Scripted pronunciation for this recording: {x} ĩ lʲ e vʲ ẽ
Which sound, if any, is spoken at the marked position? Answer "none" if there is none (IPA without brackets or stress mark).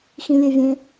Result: x